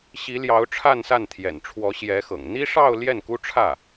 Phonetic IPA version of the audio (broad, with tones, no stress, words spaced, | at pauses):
ɕi˧˥ljɑ˧˥ʊ̯ ʈ͡ʂʰa˥˧nsa˥˩nt̪ʰjɛ̰˨˩n ʈ͡ʂʰwɔ˧˥ɕjɛ˧˥xɤ̰˨˩ŋ n̪i˥ʂɑ˥˧ʊ̯ ljɛ˥˩nku˥ʈ͡ʂʰä˥˩